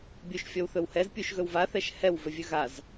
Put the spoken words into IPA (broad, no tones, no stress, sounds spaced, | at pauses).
bʲ u ʃ fʲ ɔ w θ ɵ w h ɛ z pʲ u ʃ ɣ ɵ w v a θ ɛ ʃ h ɛ w v ɵ vʲ ɵ ɣ a z